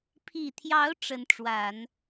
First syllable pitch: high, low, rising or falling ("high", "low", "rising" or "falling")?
low